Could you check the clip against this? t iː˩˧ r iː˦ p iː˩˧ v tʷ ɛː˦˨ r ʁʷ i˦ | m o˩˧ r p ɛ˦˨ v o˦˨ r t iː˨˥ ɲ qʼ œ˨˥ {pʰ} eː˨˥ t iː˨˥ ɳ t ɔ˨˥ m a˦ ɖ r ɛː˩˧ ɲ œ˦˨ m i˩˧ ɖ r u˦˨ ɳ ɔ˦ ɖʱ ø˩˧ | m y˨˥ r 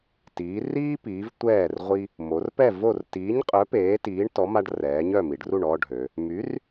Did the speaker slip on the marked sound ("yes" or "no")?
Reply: yes